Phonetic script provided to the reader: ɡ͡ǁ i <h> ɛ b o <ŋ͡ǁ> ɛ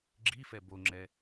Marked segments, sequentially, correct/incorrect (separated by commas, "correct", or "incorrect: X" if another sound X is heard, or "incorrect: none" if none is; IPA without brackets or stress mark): incorrect: f, correct